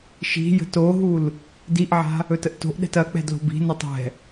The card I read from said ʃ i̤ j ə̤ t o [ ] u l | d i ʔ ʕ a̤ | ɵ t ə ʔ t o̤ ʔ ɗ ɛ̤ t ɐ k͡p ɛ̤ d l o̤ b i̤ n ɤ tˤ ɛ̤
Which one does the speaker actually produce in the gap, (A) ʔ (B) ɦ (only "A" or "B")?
B